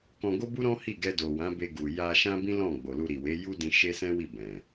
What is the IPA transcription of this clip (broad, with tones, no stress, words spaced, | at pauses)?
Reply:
kɔ̃˧ɡo˦bu˦ɾɔ̃˦ hi˦˨ɡɛ˧do˨wã˨˦ be˧ɡu˨ ja˧ʃã˦bĩ˦ lɔ̃˦˨ ɡ͡bo˨lu˧ɾi˨ we˨˦ju˦dĩ˧ ʃe˦sɛ̃˦wi˦˨ bɛ̃˨